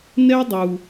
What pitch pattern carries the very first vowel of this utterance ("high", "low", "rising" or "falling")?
high